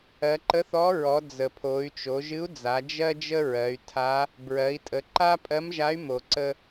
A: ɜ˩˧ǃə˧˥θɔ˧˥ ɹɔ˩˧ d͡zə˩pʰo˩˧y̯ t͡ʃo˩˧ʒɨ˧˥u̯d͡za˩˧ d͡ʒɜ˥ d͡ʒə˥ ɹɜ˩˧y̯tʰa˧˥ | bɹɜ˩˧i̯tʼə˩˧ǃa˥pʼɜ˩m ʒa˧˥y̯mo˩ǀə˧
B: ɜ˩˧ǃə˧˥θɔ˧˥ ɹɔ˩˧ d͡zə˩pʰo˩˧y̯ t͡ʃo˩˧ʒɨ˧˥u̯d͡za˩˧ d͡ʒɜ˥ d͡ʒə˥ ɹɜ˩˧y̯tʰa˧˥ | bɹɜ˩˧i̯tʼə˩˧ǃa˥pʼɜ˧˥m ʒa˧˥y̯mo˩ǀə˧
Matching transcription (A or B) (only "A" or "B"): B